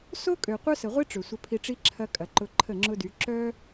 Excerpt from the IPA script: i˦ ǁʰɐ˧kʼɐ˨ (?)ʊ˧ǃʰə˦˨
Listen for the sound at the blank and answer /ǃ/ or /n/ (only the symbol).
ǃ